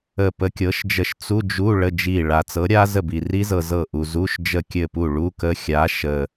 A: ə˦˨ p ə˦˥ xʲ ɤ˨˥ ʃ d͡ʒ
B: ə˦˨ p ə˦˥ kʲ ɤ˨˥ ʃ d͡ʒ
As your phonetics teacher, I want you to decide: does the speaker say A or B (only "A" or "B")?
B